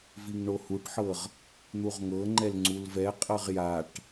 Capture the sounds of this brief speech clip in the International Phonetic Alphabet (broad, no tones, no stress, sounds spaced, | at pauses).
v i ŋ ɳ o h u ʈ ħ ɤ ʁ | n̪ u ʁ ŋ ɤ ŋ͡ǃ ɛ l ŋ͡ǀ u l v ɛ qʼ ɤ ʁ j a ʈ